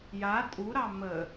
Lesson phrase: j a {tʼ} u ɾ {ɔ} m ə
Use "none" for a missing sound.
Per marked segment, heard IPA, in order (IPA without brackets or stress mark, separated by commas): tʼ, ɑ